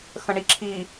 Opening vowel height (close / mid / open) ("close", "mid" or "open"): mid